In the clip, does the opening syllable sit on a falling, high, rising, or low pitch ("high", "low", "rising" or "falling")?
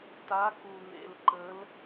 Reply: rising